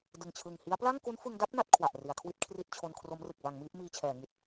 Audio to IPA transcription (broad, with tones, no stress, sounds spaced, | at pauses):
d ɯ˨˩ ŋ t͡ɕʰ ɯ˨˩ ŋ h i˦˥ a̯ p l a˥˩ ŋ k u˦˥ n f ɯ˧ ŋ d a˥˩ p̚ n a˥˩ t̚ kʰ w a˨˩ ʔ r i˩˦ a̯ kʰ w i˥˩ t̚ kʰ r i˥˩ t̚ t͡ɕʰ o˧ n kʰ r o˦˥ m r ɯ˨˩ k̚ b a˩˦ ŋ m iː˦˥ p̚ m iː˧ t͡ɕʰ ɛː˩˦ ŋ i˨˩ t̚